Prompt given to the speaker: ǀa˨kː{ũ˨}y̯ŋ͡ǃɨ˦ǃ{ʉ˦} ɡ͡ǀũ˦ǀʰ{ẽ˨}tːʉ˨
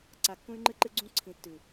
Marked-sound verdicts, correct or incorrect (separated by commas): incorrect, incorrect, incorrect